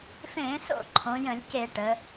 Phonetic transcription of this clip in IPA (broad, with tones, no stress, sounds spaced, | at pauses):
f ẽ˧˩˧ s o̰˧˩˧ ǃʰ õ˩˧ j ə̃˧˩˧ lʲ c e˧˩˧ ʈ ə˩˧